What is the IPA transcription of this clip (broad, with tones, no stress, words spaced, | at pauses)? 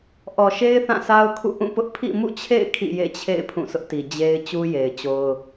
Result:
ʔɔ˨ʃe˦ɪ̯ θã˦˨sa˦ʊ̯kʰṵ˦˨ ʔũ˦˨pʊ˦ʔ pʰḭ˦˨ mṵ˦˨t͡ɕʰḛ˦˨ɪ̯ kʰḭ˦˨jḛ˦˨t͡ɕʰḛ˦˨ɪ̯ pʰũ˦˨sʰʊ˦ʔti˨ d͡ʑe˦ɪ̯ t͡ɕu˦je˨ɪ̯t͡ɕo˦ʊ̯